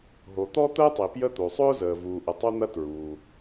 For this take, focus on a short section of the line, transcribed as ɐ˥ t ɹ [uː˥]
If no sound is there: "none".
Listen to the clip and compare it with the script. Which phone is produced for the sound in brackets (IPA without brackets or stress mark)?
uː˩